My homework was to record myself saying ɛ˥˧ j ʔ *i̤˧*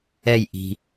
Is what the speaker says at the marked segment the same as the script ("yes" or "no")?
yes